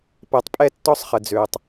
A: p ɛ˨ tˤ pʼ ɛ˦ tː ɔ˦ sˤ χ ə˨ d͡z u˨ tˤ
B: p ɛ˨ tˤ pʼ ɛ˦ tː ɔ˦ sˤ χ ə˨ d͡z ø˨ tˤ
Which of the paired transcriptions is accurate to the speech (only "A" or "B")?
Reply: B